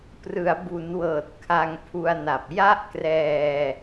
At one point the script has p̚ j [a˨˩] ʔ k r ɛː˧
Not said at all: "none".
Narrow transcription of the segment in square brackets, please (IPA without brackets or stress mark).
a˥˩